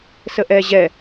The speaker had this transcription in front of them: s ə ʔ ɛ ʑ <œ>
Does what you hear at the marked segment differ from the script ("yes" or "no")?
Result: yes